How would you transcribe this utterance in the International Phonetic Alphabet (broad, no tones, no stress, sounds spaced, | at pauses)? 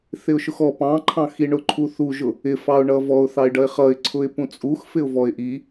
θ ɪ ʊ̯ ʃ ʊ x ɔ p ɑ̃ ǃʰ ɑ̃ x i ɳ ʊ ǃʰ u θ u ʒ ʊ | ɪ f ɑ ʊ̯ ɳ ʌ v ɔ ʊ̯ θ ɑ ɪ̯ ɖ ʌ ɪ̯ χ ʌ ɪ̯ ǀʰ ʊ ɪ̯ p ũ t͡sʼ u x f ɪ ʊ̯ v ɔ ɪ̯ ʔ i